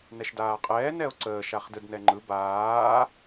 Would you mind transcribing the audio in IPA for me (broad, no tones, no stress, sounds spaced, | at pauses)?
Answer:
n ɛ ʃ d aː qʼ ɛː n ɛ o̯ ǀ əː ʃ a χ d ɯ d n ɛ ŋ͡ǃ ɯ b aː